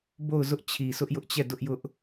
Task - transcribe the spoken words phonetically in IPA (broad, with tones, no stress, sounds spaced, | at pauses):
b o˦˨ ʊ̯ z ʊ˦ ʔ t͡ɕʰ i˨ s ʊ˦ ʔ j ʊ˦ ʔ t͡ɕ ɛ˦˨ d ʊ˦ ʔ j ʊ˦ ʔ